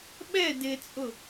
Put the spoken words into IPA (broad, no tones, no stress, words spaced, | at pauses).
ɓɛ dɪt͡sʼʊ